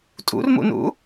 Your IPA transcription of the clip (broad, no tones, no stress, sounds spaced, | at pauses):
tʼ ṵ r m ṵ n ṵ